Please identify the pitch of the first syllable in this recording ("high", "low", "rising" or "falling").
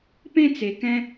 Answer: high